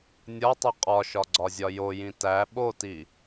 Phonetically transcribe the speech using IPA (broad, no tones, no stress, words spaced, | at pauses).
nʲɒtˤi qʼɒʃɒɡ͡ǀɒzʲɒ jojĩ tæ ɓoti